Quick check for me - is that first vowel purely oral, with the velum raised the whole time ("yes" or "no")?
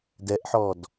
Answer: yes